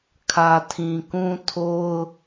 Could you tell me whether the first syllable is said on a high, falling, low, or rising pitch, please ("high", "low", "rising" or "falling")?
low